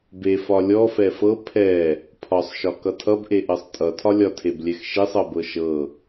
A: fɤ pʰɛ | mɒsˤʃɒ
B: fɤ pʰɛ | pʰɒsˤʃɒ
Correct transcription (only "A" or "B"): B